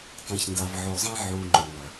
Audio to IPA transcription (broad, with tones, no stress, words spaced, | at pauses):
tˤẽ˨çnda˨vʕo˨zˤẽ˦ ʕu˨ ŋ͡ǃõ˨nɐ˨